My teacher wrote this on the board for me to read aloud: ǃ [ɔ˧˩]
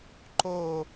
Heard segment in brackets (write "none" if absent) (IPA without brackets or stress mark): o˧˩